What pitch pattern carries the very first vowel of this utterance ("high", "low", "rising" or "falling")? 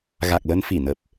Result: low